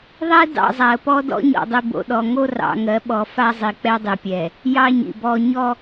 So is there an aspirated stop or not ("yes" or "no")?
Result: no